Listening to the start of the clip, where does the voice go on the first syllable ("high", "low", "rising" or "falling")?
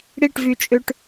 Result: falling